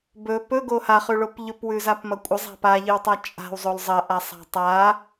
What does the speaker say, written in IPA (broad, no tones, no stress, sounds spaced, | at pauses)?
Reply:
b ɵ p ɵ ɡ o h a χ ʉ ɭ o p ʎ ɵ p w ʉ z a p m ɐ kʷʼ ɐ zˤ a̤ p a ʎ ɨ w tˤ a t͡ʃʼ a̤ w zˤ o l zˤ ɐ ʔ a sˤ a̤ tˤ a